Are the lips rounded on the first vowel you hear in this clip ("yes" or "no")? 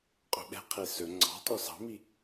yes